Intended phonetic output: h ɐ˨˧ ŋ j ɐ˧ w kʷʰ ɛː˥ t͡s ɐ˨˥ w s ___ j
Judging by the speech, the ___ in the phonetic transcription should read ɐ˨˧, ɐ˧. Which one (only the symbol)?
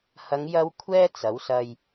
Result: ɐ˧